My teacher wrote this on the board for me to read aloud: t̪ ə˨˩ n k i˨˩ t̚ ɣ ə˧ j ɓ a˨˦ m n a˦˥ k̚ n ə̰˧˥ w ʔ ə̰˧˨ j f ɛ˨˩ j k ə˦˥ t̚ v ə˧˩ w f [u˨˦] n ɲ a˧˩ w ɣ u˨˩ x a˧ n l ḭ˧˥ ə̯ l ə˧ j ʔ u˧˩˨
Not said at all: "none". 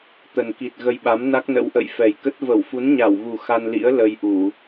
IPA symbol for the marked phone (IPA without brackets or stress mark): u˨˦